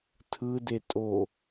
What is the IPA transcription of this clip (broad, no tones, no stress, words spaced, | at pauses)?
tʰɯdetʼoː